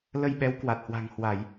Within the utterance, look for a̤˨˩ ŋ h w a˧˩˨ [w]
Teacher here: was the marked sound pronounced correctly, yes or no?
no